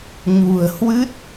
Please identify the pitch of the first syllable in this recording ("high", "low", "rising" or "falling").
low